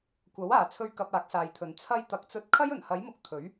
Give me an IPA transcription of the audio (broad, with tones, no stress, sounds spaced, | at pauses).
kʷ ɐ˨˥ w aː˨ t͡sʰ ɵ˧ ɥ k ɐ˧ p̚ aː˨˥ k̚ s aː˨ j t̪ʰ ɵ˨˥ n t͡sʰ ɐ˧ j t̪ ɐ˨ k̚ t͡s ɵ˧ t̚ kʰ ɐ˥ j ɵ˨˩ n h ɐ˨˥ j m ʊ˨˥ k̚ t̪ʰ ɵ˨˥ ɥ